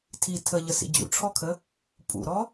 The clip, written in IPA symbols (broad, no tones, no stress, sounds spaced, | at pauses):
tʰ i tʰ ə ʎ ə s ḭ d͡ʑ ṵ ʈ͡ʂʰ ɔ kʰ ə | pʼ ṵ ɾ ɔ